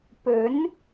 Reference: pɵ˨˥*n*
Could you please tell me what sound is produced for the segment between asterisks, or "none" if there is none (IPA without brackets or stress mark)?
n